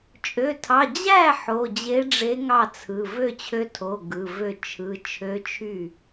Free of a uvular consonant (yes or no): yes